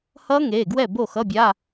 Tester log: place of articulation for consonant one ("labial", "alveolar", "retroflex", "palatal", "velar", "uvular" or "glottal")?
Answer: glottal